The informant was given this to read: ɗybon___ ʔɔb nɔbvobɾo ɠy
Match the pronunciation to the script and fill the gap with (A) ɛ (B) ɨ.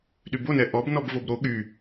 A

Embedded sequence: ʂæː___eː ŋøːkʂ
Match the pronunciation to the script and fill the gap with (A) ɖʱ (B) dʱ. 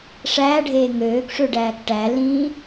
A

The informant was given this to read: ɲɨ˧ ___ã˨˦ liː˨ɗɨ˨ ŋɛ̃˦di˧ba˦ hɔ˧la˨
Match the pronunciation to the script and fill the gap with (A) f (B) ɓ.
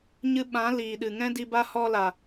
B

